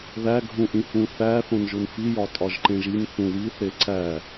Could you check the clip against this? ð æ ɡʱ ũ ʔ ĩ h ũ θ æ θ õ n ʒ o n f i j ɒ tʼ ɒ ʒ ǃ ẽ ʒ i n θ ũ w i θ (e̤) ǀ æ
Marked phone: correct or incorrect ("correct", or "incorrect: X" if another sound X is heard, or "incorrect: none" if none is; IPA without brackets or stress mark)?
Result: incorrect: e